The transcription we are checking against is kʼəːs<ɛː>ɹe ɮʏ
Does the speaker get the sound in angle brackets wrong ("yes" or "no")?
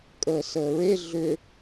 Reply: yes